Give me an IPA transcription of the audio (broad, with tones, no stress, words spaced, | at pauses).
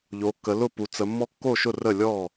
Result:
ʎo˩˧kːə˩˧lʊ˥˩ pu˩˧t͡sə˩˧ mːɔ˦kːo˥˩ʃʊ˥˩ rə˥˩lʲɔ˥˩